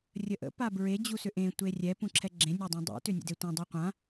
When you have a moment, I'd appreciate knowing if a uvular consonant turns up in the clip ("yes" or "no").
yes